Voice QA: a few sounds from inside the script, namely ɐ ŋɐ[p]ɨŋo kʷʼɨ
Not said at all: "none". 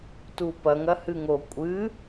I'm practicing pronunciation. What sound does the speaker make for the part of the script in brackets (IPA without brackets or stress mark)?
h